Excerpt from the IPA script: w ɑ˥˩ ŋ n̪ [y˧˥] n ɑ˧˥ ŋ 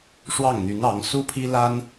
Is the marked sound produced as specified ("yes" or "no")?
yes